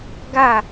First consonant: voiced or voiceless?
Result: voiced